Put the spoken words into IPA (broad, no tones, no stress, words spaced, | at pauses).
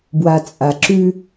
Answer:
bwat͡sʼaǁʉ